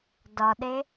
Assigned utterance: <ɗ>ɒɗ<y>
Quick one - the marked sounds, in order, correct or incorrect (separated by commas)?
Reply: incorrect, incorrect